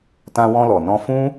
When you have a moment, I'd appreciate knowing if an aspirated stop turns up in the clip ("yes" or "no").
no